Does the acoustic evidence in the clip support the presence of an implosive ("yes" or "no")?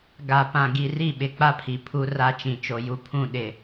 yes